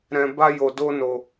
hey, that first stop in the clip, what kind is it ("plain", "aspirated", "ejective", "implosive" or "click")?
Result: plain